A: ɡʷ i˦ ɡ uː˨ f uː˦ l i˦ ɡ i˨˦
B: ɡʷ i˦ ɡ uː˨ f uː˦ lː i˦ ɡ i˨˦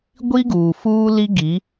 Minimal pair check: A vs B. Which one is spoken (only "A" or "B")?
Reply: A